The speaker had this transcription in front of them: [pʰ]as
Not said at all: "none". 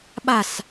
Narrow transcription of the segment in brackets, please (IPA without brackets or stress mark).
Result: ɓ